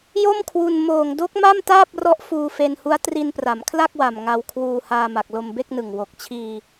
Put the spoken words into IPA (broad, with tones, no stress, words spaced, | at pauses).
jo˥˩mkʰwu˧n moː˨˩ŋdo˦˥k̚ma˥˩m taː˥˩p̚rɔ˦˥ʔ fuː˧fe˧nhu˦˥a̯ tri˧npra˩˦mkʰla˥˩k̚wa˨˩m ŋa˧wkʰwuː˧ haː˧ma˨˩k̚ lo˧mbe˥˩k̚nɯ˨˩ŋ wo˨˩k̚t͡ɕʰiː˧